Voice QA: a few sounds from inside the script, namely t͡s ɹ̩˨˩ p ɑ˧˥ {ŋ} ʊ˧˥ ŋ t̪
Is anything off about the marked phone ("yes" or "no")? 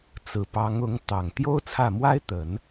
no